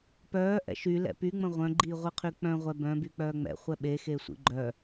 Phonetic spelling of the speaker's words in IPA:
p œː ʔ ɛ̰ ʃ y l ɛ̰ p y ŋ͡m ə̃ ʁʷ œ̃ ɡ͡ǃ iː ʁʷ i qʰ y k͡p œ̃ ʁʷ ɛ b œ̃ b y k͡p œː ŋ͡m ɛ̰ χʷ ɛ ɓ e x e sʷ ḭ ɡ͡ǃ œ

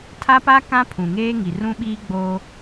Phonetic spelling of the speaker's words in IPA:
tʰ a˦ p a˦ k ã˦ pʰ ũ˨ ŋ eː˦ ŋ i˨ r ũ˦ ɓ iː˦ ɡ͡b oː˦

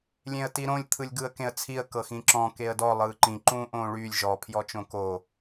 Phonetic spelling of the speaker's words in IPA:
lʲ ẽ ə̯ t i ɾ õ lʲ t̪ʰ ɯ lʲ ɡ ɯ ə̯ k ẽ ə̯ t͡sʰ i ə̯ k ɤ x ĩ ǁ ɔ̃ k e ə̯ d ɔ lˠ ɯː ǃ ĩ ǃ ũː ʔ õː ɭ yː lʲ ʒ ɔ pʰ j ɔ t͡ʃ õ k o

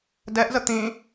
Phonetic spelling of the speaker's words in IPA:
d ɛ ʔ z ə t̪ ĩ

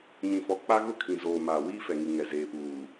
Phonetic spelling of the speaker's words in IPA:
ɲ ĩ˨ f ɔ˨ k͡p a˦ ɣ ʊ˦ kʰ ĩ˨ z oː˨ m aː˨ w iː˦ f ɛ˨ ŋ i˨ ŋ ɛ˨ z eː˨ p uː˨

